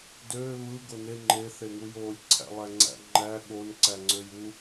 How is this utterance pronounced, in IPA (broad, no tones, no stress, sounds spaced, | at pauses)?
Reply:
d øː β ɯ ɡ o n e ŋ͡ǃ e θ e ŋ u j oː lʲ ǀʰ æ̰ lˠ æ ŋ͡ǀ æ̰ ŋ͡ǃ æ ɠ o n ǀ æ ŋ͡ǀ ø j u